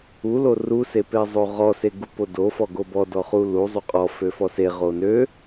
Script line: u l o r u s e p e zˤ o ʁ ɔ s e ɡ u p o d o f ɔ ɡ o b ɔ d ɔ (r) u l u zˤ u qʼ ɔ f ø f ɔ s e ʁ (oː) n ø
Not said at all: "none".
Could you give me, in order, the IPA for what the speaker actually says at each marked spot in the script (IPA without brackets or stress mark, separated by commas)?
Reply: χ, o